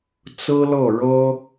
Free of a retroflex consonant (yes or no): no